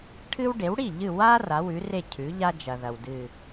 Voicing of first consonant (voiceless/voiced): voiceless